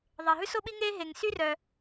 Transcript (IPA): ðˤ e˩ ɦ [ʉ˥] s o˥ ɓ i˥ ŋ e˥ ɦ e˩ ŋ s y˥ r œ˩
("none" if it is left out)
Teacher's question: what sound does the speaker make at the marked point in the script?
ʉ˥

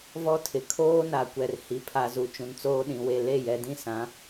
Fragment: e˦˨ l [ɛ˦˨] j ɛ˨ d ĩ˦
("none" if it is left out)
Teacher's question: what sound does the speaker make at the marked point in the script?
e˦˨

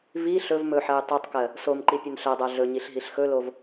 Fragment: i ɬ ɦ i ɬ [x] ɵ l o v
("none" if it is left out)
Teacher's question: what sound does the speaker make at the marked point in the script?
x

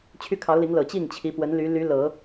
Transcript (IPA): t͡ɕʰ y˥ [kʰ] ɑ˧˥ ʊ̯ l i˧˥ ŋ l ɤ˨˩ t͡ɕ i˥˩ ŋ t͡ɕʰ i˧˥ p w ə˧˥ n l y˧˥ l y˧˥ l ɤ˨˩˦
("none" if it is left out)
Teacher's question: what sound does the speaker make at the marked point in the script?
kʰ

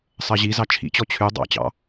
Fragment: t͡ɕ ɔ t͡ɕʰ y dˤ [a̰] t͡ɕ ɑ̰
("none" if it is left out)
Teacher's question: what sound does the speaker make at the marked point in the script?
ɑ̰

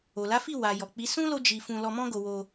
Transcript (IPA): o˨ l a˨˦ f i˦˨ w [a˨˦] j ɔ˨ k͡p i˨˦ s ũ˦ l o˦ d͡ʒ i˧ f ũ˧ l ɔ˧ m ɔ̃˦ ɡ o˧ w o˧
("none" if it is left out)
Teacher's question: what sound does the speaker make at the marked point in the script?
a˨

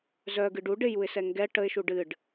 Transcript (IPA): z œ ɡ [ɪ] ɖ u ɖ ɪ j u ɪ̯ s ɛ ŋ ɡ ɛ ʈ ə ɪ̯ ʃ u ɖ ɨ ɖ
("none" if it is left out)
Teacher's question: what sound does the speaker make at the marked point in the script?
ɨ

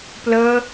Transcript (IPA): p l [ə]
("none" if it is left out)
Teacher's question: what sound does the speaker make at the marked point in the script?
ə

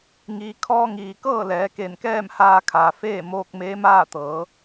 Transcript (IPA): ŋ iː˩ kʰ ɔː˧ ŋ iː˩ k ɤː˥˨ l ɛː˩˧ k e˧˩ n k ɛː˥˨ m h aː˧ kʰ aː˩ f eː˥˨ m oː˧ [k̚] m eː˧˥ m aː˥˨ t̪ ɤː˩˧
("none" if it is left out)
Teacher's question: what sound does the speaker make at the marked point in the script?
k̚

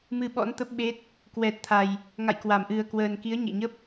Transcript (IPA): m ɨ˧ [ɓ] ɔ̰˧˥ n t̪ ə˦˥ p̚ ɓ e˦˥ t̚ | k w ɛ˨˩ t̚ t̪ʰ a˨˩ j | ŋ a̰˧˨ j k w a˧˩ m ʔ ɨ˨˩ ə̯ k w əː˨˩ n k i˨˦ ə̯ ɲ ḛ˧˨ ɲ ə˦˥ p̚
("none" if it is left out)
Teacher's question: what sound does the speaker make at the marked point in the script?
ɓ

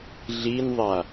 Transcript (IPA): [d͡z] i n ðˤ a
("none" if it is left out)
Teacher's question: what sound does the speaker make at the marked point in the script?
ɮ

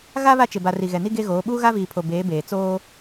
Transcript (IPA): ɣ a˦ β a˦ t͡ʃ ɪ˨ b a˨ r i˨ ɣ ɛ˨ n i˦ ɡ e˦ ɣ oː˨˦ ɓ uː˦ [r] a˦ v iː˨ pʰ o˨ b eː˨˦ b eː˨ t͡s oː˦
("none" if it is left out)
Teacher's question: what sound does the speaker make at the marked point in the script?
ɣ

